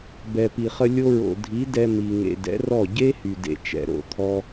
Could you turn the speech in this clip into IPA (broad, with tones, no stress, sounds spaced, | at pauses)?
b ɛ˨ p i˨ χ ə˧ lʲ o˧ ɹ o̰˨ dʱ i˨˦ d ɛ˦ m i˧ ŋ ḛ˧ d ɛ̰˨˦ r ɔ˦˨ ɟ e˦ h y˨ d ḛ˧ t͡ʃ ɛ̰˨ ɾ o̰˨ t̪ʰ ɔ˦